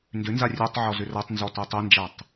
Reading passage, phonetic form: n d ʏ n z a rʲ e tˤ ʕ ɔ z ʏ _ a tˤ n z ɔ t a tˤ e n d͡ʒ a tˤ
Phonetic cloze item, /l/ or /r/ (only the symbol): r